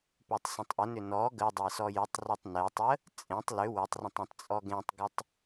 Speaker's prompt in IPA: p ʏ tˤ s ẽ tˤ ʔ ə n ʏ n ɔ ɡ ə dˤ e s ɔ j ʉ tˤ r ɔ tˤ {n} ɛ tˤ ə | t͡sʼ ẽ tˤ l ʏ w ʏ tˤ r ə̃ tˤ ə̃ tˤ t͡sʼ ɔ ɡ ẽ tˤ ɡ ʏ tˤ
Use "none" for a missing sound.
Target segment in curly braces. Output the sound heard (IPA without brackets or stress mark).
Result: n